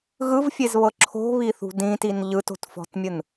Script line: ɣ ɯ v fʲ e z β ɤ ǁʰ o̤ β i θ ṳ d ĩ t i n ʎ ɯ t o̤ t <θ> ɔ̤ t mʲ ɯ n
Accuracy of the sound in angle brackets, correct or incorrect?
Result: incorrect: f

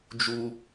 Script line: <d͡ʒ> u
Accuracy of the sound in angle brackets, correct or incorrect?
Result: correct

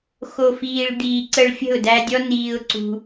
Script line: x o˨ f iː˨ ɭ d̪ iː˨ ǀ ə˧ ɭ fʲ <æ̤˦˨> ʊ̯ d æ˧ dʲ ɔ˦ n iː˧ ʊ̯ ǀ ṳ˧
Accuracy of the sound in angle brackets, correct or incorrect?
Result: incorrect: ə̤˦˨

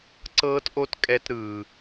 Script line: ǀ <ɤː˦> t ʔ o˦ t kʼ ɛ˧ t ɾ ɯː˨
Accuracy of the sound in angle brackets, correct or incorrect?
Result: correct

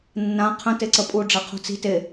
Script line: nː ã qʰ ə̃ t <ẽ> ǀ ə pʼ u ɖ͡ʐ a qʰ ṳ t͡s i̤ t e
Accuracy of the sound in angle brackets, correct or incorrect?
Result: incorrect: e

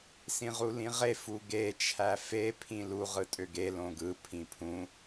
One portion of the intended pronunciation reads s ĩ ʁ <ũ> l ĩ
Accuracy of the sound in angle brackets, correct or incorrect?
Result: incorrect: u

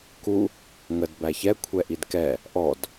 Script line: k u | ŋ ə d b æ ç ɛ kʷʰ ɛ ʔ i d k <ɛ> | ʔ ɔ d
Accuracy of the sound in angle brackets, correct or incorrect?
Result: correct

